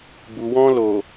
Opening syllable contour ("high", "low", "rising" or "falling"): low